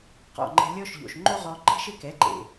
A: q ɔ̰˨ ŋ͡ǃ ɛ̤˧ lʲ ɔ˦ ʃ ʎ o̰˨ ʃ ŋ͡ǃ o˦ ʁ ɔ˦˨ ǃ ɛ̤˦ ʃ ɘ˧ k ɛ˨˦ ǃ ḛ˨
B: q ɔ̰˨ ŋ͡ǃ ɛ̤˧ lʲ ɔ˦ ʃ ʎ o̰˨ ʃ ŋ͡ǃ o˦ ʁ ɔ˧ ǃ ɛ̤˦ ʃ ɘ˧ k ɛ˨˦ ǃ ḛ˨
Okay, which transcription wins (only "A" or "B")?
B